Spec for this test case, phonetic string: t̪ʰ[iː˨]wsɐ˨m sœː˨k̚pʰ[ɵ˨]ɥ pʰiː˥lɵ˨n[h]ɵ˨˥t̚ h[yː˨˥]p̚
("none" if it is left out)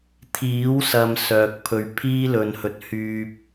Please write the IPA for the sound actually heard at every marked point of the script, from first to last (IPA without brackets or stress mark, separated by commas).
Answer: iː˨˥, ɵ˨, h, yː˧